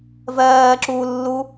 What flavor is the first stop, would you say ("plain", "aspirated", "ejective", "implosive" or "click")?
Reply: click